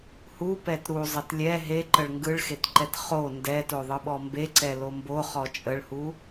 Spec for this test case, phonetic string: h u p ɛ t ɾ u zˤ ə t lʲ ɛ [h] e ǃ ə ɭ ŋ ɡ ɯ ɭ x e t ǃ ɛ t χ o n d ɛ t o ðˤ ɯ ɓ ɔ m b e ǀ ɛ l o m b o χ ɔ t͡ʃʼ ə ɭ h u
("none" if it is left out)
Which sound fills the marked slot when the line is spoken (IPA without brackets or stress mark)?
ɦ